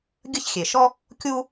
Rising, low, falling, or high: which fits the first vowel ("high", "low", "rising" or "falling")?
high